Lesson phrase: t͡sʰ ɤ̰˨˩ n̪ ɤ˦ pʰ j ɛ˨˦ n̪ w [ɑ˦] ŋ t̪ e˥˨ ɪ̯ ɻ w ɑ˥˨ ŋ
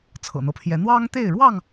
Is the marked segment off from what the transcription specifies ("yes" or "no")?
no